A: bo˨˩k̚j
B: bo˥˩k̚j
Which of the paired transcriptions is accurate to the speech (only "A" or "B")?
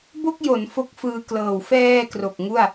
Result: B